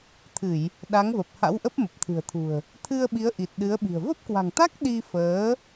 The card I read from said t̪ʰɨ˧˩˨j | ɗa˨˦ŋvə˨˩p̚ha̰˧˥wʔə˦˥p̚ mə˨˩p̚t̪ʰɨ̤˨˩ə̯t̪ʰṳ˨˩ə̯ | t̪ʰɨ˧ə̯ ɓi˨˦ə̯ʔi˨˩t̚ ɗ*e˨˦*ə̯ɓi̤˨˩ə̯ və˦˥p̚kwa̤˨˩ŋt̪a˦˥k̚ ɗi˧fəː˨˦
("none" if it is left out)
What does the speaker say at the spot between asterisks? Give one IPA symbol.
ɨ˨˦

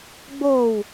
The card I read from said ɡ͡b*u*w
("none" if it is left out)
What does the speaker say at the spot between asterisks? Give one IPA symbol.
o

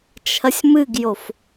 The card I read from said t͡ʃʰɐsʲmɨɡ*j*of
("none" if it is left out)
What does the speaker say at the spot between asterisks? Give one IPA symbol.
j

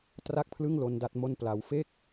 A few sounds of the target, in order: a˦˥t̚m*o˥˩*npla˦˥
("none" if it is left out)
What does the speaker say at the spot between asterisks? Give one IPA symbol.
o˥˩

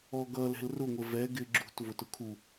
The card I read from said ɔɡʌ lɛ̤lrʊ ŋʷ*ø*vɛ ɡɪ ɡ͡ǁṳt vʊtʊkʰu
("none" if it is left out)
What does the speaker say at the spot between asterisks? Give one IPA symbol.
ə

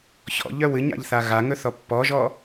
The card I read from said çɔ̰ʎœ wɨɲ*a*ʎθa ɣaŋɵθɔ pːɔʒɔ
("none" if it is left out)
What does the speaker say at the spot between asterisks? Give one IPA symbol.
a̰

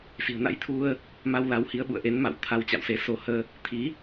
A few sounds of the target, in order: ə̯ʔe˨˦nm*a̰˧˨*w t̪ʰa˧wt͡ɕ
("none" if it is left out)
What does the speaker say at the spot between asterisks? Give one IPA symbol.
a̰˧˨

